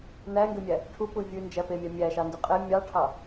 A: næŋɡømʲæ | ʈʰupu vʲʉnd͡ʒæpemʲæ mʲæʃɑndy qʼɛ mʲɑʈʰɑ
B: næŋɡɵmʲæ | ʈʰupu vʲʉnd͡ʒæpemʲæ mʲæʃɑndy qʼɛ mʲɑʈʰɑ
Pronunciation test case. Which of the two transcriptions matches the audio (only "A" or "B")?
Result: A